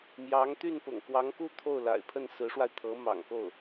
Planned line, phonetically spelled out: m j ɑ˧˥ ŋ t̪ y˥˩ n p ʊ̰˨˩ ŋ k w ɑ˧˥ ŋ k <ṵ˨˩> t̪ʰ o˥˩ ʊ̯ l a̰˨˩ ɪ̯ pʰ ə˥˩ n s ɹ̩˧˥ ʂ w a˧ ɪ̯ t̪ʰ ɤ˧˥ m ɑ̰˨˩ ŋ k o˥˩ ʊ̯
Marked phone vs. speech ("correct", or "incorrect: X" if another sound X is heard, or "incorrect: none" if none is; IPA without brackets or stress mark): incorrect: u˥